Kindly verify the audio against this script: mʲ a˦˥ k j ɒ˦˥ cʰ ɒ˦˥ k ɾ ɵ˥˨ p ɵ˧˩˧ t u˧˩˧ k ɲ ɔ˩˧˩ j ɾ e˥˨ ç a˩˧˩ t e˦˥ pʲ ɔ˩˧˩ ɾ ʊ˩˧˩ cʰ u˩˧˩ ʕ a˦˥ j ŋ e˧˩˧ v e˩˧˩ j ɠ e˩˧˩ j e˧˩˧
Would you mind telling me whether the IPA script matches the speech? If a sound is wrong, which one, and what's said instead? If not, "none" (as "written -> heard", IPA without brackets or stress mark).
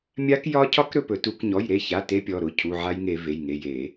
ɠ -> ŋ